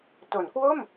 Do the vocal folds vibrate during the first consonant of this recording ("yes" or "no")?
no